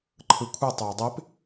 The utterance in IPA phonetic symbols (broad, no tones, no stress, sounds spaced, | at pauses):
ǃʰ ɯ kʷʰ ɯ tˤ o i̯ dˤ e p